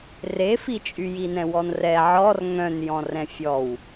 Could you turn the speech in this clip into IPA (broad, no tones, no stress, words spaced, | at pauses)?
refit͡ʃʼy jinɛ̃wɔnrɛ ʕɔr ŋœ̃n jɔ̃rɛ̃fʲɔw